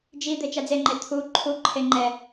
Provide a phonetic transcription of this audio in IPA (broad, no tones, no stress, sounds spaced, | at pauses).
d͡ʒ i d̪ e t͡ʃ a d͡z e ŋ͡ǃ e t̪ʰ u ǃʰ u ǃʰ e ŋ͡ǃ ɛ